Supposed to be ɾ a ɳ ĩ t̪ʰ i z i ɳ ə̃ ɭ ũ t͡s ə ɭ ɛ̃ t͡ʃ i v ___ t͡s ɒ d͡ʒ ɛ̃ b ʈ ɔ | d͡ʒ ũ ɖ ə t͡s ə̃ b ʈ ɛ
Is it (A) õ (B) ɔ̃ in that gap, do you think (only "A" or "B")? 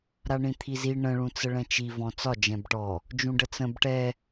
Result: B